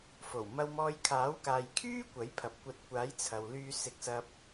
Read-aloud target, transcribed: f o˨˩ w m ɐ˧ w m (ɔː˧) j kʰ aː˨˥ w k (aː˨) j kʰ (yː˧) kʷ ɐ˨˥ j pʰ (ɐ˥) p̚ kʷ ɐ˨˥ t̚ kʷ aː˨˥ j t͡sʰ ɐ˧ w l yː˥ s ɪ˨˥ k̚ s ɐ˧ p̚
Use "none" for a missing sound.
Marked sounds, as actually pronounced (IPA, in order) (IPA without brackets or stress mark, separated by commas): ɔː˧, aː˨, yː˥, ɐ˨